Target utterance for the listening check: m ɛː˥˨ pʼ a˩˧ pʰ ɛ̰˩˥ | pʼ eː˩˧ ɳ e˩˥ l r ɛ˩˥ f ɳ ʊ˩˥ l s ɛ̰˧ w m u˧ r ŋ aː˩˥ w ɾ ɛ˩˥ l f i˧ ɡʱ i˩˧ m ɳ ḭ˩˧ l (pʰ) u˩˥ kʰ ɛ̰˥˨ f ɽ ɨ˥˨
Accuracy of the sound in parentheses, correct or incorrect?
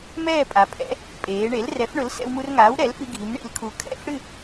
incorrect